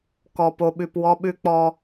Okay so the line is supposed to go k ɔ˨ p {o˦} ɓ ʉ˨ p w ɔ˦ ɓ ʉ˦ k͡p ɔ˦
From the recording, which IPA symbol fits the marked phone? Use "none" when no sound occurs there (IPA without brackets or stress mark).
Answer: o˨